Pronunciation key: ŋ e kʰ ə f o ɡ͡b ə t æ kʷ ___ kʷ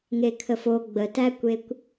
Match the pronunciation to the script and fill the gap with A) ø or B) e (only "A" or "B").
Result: B